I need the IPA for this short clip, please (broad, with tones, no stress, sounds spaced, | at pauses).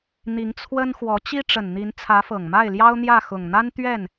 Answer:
n̪ i˧˥ ŋ t͡sʰ w ə˥ n x w ɔ˧˥ t͡ɕ i˥ ʈ͡ʂ ə˨˩ n n̪ i˧˥ n t͡sʰ ä˧˥ f ɤ˨˩ ŋ m a˥˩ ɪ̯ l j ɑ˥ ʊ̯ n̪ j ä˥˩ x ʊ˨˩ ŋ n̪ a˥ n t̪ ɥ ɛ˥˩ n